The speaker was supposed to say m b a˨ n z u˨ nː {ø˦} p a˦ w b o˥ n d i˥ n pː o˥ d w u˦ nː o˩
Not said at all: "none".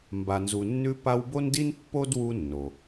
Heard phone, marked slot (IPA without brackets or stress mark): ʉ˦